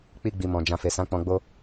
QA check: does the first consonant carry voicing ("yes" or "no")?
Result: no